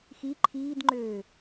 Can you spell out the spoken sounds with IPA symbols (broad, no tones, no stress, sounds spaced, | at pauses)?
x i ǃʰ iː d ŋ͡ǃ øː